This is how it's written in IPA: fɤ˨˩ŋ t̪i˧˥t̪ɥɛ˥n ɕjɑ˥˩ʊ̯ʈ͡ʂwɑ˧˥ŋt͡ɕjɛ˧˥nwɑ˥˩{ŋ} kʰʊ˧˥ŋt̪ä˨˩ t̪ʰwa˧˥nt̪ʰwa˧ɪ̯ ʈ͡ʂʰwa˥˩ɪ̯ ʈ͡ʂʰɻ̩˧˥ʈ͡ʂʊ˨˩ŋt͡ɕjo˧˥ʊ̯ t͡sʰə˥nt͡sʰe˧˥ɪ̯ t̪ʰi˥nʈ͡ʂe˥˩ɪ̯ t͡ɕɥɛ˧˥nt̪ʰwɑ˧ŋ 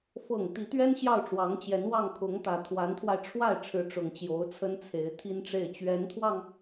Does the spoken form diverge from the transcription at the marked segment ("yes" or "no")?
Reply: no